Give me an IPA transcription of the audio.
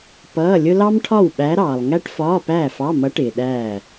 pʌː˧˥˧lʲʊ˥ lɑ˥mʈʰɒ˥˨w ɓæ˧˥ɾɑː˨lˠ ŋæ˥ʈfɒː˧˥˧pæː˥˨fɑ˧˥˧ mʌ˧˥ ʈɪː˨ɗæː˥˨

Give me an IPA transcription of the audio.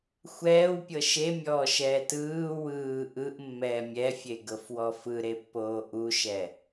xʷɛːwpʲɤ ʃemʲɔːʃɛː tɯː wɯː ʔɯʔmːɛː mʲɛfʲeɡɤfwɔ fɯɾepːoː ʔuʃɛ

